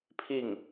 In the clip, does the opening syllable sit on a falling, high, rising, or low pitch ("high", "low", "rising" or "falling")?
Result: falling